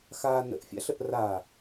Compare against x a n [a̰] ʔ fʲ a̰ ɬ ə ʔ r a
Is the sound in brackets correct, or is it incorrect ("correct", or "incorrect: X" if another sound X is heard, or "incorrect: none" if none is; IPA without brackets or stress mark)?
incorrect: ə̰